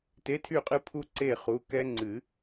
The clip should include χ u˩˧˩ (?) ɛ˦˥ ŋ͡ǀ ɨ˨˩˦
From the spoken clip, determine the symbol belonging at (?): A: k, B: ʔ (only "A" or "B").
A